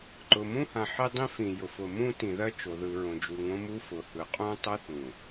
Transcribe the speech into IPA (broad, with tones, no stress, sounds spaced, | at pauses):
ǃ ʊ˨ m ũ˦ h ã˨ ħ e˦ dˤ ĩ˦ f ĩ˨ j ʊ˨ f ʊ˨ m ũ˦ t ĩ˨ ð ɜ˦ t͡ʃ o˨ ð ɯ˨ ɹ õ˨ d͡ʒ u˨ ŋ õ˦ m u˦ f ʊ˨ h ɯ˨ qʼ ũ˦ tˤ ɛ˦ θ ũ˨